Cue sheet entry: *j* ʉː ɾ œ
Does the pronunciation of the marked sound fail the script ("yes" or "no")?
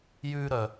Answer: no